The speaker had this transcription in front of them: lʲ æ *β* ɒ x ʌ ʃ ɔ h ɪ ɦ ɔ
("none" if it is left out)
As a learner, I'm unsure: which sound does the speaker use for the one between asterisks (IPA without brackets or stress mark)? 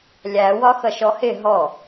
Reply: w